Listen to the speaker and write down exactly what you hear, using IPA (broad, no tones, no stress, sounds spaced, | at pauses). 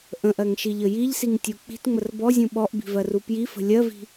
ʔ ə̃ ʔ ɜ ŋ ʃ i ʎ ə j i ʎ s i ŋ tʲ u k͡p i̤ t ŋ͡m ə r b ɔ zʲ ũ ɓ ɔ ʔ b i̤ v ɜ r u p j i f ə̤ lʲ ɜ v i̤